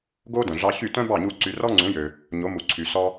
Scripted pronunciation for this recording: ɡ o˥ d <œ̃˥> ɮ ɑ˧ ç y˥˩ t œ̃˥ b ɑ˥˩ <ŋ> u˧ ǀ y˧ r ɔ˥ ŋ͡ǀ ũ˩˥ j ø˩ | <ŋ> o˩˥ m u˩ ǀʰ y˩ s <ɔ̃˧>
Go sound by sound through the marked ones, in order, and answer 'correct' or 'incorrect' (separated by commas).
incorrect, incorrect, incorrect, incorrect